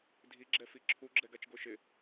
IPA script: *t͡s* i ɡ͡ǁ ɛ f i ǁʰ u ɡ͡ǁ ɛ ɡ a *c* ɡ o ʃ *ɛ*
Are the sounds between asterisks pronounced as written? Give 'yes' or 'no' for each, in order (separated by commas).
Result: no, no, no